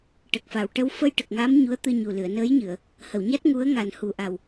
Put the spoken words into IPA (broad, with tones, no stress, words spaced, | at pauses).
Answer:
ʈə˨˩k̚fa˨˩w ʈə˧wfə˧j ʈə˨˩k̚ŋa˧˥m ɲu˧˥ə̯t̪ɨ˧ɲu˨˩ lɨ˨˩˨ə̯nəː˧˥jɲɨ˨˩˨ə̯ | hə˨˩˨wɲa˦˥t̚ ŋu˧˥ə̯ ŋa˨˩nhu˨˩ʔa˨˩w